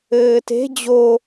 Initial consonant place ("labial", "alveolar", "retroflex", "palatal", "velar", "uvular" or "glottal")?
alveolar